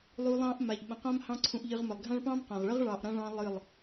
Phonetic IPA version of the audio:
lˠ u˧ lˠ ɑ̃˦ ʔ m a˨ ʎ ɓ ə̃˨ q ã˦ m h ɑ̃˦ ǀʰ ũ˧ ʔ ʎ ɨ˧ ʁ m ə˨ lˠ ɡʱ ã˦ ɭ p ɑ̃˦ m q ã˨ ʁ ɭ ə˦ ʁ ɭ ɑ˨ ʔ ɾ ã˧ ɭ ɑ̃˧ lˠ ɨ˦˨ lˠ

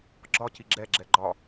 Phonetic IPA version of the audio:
ɡ͡ǁ ɒ c i ɡ͡ǁ ɛ ɡ͡ǁ ɛ ɡ͡ǃ ɒ

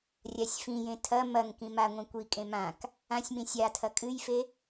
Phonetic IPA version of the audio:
rʲ a sʲ f ĩ j ẽ tʰ ɐ m ɐ ŋ k ĩ m a ŋʷ ĩ kʷ i kʼ ẽ m ã k | ã sʲ m ĩ sʲ a tʰ ɐ kʼ ɨ j f e

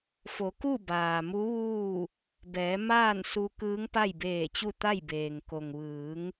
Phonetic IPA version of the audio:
f o˩˧ k u˥˨ b aː˩ m u˧˥ ʋ uː˥˨ | b ɛː˩˧ m aː˥˨ n s u˧ k ɯː˧˥ ŋ p a˥˨ j b eː˧˩ t͡ɕ u˥˨ t̪ a˥˨ j b eː˩ ŋ k o˩ ŋ ʋ ɯː˩˧ ŋ

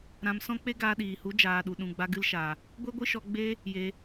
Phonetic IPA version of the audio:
ɾ ã˧ m s ɔ̃˦ k͡p e˦ ɡ aː˧ ɗ iː˨ h u˨˦ d͡ʒ aː˨ ɗ u˨ ɗ ũ˨ ɡ͡b a˧ ɡ ɨ˧ l ʃ a˨ | ɡʷ e˦ ɡʷ ɨ˦ ʃ ɔ˧ ɡ͡b e˦ | j e˧

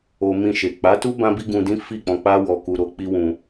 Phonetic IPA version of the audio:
o˧ m ĩ˧ ʃ e˨ k͡p a˨˦ t u˦ b ã˦ b i˦ ɡ ũ˧ d ĩ˦ f i˦˨ k͡p ɔ̃˧ k͡p a˦ w ɔ˧ k u˧ ɾ o˦ k͡p i˦ w ũ˧

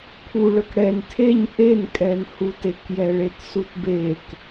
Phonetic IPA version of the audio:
pʰ u ɭ œ k ɽ ɛ n tʰ e ɲ ʔ e n kʼ ɛ n h u t e k j ɛ ɭ e t s u t b e k

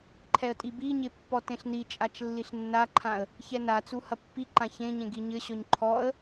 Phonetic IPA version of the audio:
ǃʰ ɛ ə̯ tʼ i b i ɲ e pː ɔ t ẽ ɬ n i t͡ʃʼ a t͡ʃ lː i ɬ nː a ǃʰ ã ə̯ | ç ɛ n a t͡s u h ɐ pː i ǃ ã ç ẽ ɲ ẽ ɡ i ɲ ɘ ɕ ɔ ɲ ǃʰ ɔ ə̯

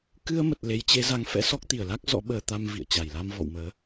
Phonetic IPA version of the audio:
k ɨ˧ ə̯ m ə˨˩ t̚ l e˨˦ j t͡ɕ e˨˦ z a˨˦ ŋ f ɛ̰˧˥ s ɔ˦˥ k̚ t̪ i˧˩ ə̯ l a˦˥ k̚ z ɔ̰˧˥ ɓ əː˧ t̪ a˧ m v ḭ˧˨ ə̯ t͡ɕ a˧˩ j l a˧ m v ɔ̰˧˨ w m əː˨˦

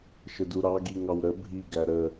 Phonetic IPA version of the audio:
ʃ ə d u ɾ ɑ ɡ i ŋ ɑ w ɾ ə bʱ i ɡ æ ɾ ə

